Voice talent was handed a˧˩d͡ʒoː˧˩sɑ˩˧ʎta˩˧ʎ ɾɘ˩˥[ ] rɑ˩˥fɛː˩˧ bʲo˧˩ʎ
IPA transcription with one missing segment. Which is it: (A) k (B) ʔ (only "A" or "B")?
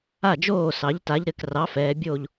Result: A